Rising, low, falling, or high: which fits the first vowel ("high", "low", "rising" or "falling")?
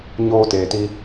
high